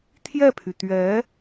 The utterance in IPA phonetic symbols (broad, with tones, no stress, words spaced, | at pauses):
t̪ʰjɛ˥˩pʰy˩ t̪ɥɛ˧˥